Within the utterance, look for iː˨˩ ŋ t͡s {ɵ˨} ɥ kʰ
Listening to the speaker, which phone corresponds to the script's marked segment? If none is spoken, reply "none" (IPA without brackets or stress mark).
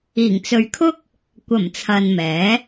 ɵ˨